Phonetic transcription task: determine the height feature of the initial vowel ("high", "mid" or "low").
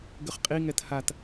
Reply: high